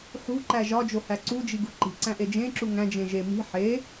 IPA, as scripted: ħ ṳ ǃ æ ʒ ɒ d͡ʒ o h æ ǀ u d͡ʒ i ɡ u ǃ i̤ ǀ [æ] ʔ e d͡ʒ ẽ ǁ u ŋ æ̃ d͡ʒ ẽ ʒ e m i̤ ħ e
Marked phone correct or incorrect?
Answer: incorrect